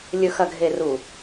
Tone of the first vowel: low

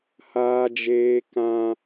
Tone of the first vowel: high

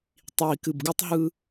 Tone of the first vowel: low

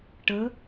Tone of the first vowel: rising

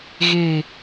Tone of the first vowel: falling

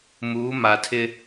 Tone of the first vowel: rising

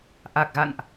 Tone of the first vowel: low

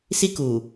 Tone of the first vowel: high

